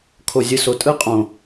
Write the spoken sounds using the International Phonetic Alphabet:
kʰ o˨ zʲ ɯ˨ s o˨ tʼ ɯ˦ qʼ õ˨

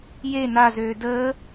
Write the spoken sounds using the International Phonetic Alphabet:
j e n a z øː d əː

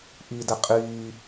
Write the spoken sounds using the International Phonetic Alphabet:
ʔ iː d ɛ qʼ iː

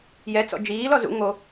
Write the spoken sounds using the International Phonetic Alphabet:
j ɛ t͡s ɔ̰ d͡ʒ iː l ɔ z ṵ ŋ o

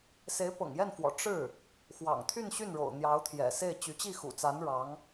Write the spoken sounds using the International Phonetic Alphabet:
s e˧˥ ɪ̯ p ɤ̰˨˩ ŋ j ɛ˥˩ n f w ɔ̰˨˩ ʈ͡ʂ ɻ̩˥˩ | x w ɑ̰˨˩ ŋ t̪ʰ y˥˧ n ɕ y˥˩ n ɻ o̰˨˩ ʊ̯ n̪ j ɑ˧˥ ʊ̯ t̪ʰ j ɛ̰˨˩ s e˥˩ ɪ̯ t͡ɕ y˧˥ t͡ɕ i˥˩ x ṵ˨˩ t͡s a˧˥ n ɻ ɑ˧˥ ŋ

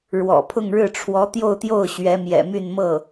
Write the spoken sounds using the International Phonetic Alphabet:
ɻ w ɔ̰˨˩ pʰ ʊ˥˧ ŋ ɻ ɻ̩˥˩ ʈ͡ʂʰ w ɔ˧˥ t̪ j o˥˧ ʊ̯ t̪ j o˥˩ ʊ̯ ɕ ɥ ɛ˧˥ m j ɛ̰˨˩ m y˥˧ n m ɤ˥˩

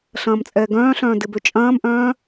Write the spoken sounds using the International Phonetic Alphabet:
ɬ ɐ̃ː m t͡sʼ ɛː ɡ œ̃ː ɬ œ̃ː d ɪ b ø t͡ʃʼ ɐ̃ː m ʔ œ̃ː

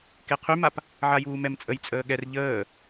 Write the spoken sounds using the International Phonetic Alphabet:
k e qʰ y m a p | ʕ a j uː m ɛ m t͡sʼ ə j t͡sʼ əː ɠ ɛ r ʎ əː

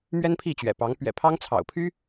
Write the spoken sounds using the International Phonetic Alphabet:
m ɥ ɛ˥ n pʰ i˥˩ t͡ɕ ɥ ɛ̰˨˩ p ɑ˧˥ ŋ p ɥ ɛ̰˨˩ pʰ ɑ˥ ŋ t͡sʰ ɑ̰˨˩ ʊ̯ pʰ y˥

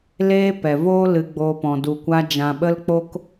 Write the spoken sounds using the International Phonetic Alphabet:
l eː˧ p ɛ˨ v oː˦ l ɨ˧ ɡ͡b oː˧ p ɔ̃˨ d u˨ kʷ a˧ d͡ʒ ã˨ ɓ ə˧ l k͡p o˧ k

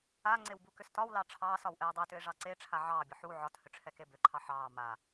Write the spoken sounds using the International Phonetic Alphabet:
a ŋ͡ǀ e w b u k ʏ s t ɒ w l ɑ ʈ͡ʂʰ ɑː s ɒ w ʔ ɛː dˤ e t ʏ e̯ ʐ ɑ ǀ e ʈ͡ʂʰ a ʕ ɑː bʲ ɒ ħ u ʕ ɒ t h ʏ ʈ͡ʂʰ ɛ k e b ʏ ǃʰ ɑ ħ ɑː m a

